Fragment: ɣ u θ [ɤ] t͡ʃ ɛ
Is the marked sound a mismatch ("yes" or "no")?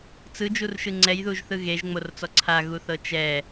no